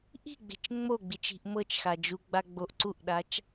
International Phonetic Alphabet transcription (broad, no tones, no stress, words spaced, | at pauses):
ʔi̤ɡ͡be̤t͡ʃ ŋ͡moɡ͡bit͡ʃi̤ʔ mɤt͡ʃxa d͡ʒuɡ͡ba ɡ͡boʔ ǀuʔɗat͡ʃ